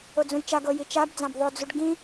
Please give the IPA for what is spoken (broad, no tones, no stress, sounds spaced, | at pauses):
o d͡z ũ j t͡ʃ a ɡ ɤ j i t͡ʃ a b d͡z ã b ðˤ ʊ d͡z u ɖ ɡ ĩ